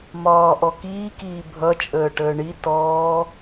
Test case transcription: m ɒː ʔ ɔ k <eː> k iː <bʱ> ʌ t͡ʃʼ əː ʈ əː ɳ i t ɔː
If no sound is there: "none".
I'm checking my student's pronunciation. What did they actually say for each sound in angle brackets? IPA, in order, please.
iː, bʱ

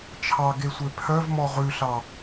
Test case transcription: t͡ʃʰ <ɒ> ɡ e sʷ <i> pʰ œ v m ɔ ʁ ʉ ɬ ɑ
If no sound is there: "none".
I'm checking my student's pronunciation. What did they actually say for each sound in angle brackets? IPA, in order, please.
ɑ, e

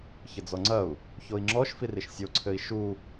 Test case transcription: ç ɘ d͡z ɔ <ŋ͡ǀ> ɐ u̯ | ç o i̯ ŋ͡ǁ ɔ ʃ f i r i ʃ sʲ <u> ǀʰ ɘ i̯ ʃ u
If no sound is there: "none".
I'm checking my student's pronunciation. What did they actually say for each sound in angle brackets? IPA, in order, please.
ŋ͡ǀ, o

